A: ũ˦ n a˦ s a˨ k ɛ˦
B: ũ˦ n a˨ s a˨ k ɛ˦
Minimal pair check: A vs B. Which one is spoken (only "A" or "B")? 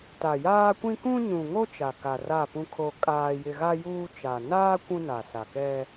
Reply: B